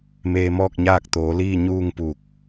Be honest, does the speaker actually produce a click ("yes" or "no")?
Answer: no